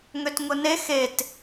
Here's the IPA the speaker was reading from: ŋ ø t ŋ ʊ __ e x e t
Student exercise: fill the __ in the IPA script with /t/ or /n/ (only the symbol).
n